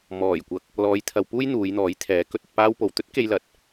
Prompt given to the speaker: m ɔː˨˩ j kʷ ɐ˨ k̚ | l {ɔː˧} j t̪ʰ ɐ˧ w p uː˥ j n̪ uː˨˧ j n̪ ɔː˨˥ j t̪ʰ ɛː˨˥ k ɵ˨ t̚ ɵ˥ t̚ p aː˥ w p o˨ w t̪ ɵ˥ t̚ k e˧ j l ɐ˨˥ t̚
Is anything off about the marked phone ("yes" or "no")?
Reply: no